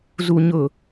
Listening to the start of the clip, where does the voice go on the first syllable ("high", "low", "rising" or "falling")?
low